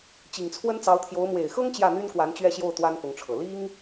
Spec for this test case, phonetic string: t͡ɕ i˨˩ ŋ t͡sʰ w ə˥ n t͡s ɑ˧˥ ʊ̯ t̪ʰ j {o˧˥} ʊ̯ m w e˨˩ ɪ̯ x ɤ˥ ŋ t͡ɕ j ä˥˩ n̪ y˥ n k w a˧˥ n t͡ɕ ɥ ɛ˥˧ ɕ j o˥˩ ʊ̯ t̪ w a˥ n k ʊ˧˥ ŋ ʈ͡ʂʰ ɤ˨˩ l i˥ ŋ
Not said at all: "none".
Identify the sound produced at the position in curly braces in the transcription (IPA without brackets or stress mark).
o˧˥